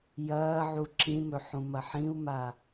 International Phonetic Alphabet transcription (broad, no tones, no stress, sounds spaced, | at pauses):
j ɐː ʕ u ǁ ĩ m ɵ ħ ũ m ɐ ħ ĩ u̯ m a